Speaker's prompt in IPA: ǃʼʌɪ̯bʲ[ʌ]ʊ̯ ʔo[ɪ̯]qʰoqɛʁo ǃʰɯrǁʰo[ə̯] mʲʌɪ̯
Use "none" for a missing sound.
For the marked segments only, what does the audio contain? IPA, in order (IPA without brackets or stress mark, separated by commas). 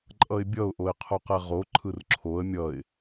ʌ, ɪ̯, ə̯